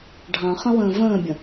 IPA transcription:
ɖʱɑ̃χə̃wə̃ː və̃ːbʲə̃

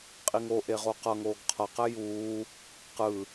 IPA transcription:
qʼiŋoʔe ʁoqʌŋoːɡ qʰʌqɛ juː | qɯ

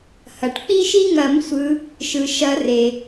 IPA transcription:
hɐ˩ʈ k͡pi˦ʃi˦ŋɐ˨˩˦m sʷɯ˨˦ | ʃɯ˩ʃɐ˨˩˦ re˩

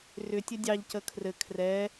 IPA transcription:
rʏtʲɘ dʲɑʎcə kʰrɘ kʰrɛ

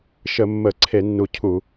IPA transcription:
ʃə˧˩˧mːə˧˩˧ ǀʰe˧˩˧nːu˨˩ cʰu˧˩˧

